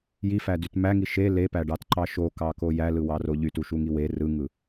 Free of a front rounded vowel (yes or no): no